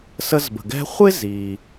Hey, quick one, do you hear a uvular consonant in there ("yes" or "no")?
yes